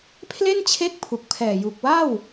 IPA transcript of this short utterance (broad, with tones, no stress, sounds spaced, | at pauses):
pʰ l e˥˩ n t͡ɕʰ e˦˥ k̚ pʰ u˨˩ k̚ pʰ ɛː˨˩ j u˨˩ k̚ w a˥˩ w